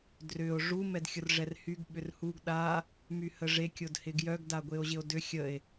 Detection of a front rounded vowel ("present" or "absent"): present